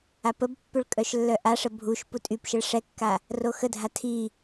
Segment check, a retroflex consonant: present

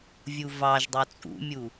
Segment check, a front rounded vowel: absent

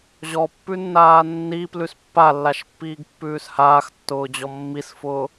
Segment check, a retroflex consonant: absent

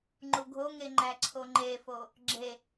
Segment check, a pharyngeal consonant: absent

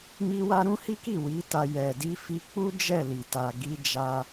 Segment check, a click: absent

